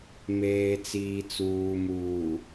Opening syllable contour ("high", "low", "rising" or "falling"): low